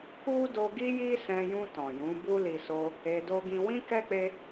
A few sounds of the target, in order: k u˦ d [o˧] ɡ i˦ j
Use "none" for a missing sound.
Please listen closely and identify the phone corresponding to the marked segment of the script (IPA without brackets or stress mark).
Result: o˧